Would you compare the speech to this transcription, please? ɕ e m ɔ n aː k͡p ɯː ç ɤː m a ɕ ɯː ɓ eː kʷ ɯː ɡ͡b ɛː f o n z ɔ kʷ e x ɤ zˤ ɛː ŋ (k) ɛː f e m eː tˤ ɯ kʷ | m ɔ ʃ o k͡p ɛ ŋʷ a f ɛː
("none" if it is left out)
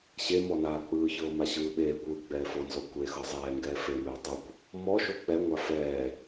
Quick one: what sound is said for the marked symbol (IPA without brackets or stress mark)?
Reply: ɡ